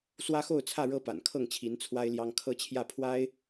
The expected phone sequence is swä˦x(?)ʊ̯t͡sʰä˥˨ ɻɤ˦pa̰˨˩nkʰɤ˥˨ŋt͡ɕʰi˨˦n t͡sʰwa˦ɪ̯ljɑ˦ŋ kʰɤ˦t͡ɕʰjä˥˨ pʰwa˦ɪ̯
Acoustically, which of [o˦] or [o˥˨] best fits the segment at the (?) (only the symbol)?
o˥˨